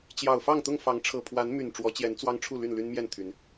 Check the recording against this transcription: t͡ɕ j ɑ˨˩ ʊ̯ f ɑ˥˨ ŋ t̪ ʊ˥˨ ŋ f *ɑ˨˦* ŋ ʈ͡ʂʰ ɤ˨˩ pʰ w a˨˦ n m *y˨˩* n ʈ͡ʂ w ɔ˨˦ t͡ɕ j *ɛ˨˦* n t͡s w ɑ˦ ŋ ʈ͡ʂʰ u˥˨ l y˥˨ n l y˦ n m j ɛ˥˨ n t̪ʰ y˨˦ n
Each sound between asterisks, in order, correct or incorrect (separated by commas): correct, correct, correct